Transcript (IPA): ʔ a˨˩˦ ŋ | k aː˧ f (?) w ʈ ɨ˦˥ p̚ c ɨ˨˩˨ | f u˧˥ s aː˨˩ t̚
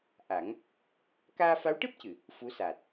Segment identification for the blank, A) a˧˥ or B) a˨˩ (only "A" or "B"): A